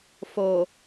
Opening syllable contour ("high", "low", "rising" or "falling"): low